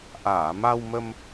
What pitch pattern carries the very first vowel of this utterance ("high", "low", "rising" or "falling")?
low